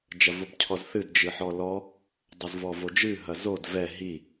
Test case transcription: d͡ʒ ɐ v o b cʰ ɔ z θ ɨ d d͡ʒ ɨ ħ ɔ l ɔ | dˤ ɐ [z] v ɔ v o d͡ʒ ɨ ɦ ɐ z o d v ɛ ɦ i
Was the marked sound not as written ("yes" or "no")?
no